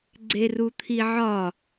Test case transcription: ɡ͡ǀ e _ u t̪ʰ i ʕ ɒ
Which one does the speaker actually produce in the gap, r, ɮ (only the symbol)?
r